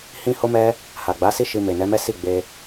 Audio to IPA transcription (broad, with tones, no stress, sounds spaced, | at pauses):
h ĩ˦ h o˦ m ɛ˦ | h a˨ ɡ͡b a˨˦ s i˦ ʃ i˧ m e˨ n ɛ˨˦ m ɛ˦ s i˦˨ ɡ͡b e˧